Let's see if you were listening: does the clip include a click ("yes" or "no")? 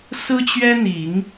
no